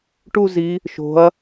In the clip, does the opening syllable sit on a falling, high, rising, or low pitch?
falling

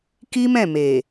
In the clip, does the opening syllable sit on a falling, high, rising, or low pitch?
high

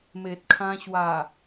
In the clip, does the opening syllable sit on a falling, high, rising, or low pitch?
low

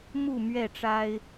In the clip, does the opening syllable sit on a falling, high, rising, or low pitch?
falling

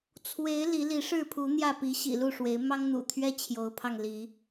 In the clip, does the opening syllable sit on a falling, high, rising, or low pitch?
rising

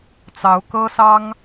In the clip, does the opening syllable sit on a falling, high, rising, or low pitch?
rising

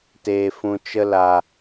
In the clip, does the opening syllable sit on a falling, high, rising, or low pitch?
low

